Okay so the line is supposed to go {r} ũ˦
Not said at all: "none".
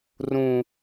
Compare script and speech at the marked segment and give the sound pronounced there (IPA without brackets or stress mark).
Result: r